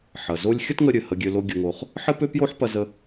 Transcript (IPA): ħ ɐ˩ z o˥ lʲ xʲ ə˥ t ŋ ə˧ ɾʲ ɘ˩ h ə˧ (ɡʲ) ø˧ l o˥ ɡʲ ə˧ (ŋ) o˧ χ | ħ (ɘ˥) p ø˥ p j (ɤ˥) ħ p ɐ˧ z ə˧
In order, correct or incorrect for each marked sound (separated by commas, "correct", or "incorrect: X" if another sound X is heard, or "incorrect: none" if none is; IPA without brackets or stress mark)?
correct, correct, correct, incorrect: o˥